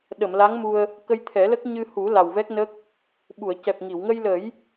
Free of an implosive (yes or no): no